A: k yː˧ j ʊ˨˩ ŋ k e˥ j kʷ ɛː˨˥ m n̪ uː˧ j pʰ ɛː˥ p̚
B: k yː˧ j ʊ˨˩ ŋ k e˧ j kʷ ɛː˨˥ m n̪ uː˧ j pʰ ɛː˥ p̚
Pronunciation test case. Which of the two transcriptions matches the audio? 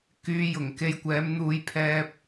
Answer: B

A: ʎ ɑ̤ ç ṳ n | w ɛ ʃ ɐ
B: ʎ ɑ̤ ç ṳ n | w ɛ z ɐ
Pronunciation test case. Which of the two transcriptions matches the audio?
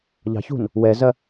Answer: B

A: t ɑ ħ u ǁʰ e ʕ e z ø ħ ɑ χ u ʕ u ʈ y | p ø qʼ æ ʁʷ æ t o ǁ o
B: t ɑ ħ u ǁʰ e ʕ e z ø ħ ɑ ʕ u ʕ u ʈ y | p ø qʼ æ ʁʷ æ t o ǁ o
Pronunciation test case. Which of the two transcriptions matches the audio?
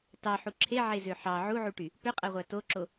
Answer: B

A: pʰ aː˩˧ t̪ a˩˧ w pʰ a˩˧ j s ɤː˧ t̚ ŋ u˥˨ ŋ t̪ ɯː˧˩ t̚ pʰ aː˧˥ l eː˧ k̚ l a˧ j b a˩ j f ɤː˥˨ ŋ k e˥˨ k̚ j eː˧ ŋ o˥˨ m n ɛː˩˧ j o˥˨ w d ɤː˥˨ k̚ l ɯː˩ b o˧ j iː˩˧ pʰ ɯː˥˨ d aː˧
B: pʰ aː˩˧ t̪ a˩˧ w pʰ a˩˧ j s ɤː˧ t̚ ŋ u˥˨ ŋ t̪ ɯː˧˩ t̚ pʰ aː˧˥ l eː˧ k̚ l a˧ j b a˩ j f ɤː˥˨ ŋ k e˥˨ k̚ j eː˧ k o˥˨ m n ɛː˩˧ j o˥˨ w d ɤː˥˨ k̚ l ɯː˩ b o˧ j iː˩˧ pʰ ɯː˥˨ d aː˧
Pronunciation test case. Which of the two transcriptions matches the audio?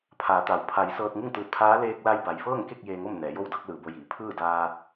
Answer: A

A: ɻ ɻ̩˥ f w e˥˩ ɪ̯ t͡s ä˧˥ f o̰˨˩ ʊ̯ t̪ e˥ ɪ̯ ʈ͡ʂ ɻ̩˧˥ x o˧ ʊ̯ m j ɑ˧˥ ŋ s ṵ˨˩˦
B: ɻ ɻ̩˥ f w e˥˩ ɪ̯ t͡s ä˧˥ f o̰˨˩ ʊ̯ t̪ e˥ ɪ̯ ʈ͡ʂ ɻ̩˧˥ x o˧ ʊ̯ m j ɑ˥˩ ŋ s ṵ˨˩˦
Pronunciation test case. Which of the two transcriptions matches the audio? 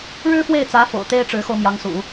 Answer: A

